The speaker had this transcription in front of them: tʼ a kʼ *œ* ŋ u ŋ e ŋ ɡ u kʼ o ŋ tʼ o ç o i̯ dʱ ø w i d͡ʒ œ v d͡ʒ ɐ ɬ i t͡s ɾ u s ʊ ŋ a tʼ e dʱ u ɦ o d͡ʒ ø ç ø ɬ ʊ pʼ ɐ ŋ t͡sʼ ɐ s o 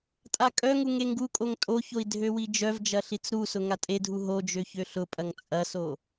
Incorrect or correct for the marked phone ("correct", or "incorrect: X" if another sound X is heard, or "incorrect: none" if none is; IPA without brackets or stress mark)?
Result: correct